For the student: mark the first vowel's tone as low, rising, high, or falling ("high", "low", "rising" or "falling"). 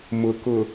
low